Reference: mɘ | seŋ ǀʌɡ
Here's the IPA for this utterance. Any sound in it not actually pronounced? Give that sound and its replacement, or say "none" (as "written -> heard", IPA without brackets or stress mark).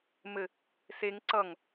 ɡ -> ŋ